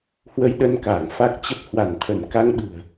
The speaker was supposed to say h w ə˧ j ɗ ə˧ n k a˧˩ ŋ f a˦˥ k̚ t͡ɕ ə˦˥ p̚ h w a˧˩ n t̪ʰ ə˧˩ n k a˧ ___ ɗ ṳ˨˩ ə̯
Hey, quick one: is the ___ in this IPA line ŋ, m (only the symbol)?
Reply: ŋ